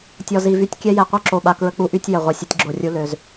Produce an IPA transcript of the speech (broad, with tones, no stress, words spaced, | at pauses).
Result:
tʲɔ˨zi˨vy˦tʲkʲɛ˦ jɛ˨qʷœ˦ǁo˨ɓa˨ kɹə˦k͡pu˦ʔy˦tʲ jə˨ ʁʷœ˨sʲə˨˦tʲɡ͡ǁo˨rʲu˦ lø˦z